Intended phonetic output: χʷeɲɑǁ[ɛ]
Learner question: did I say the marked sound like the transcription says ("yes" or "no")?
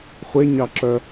no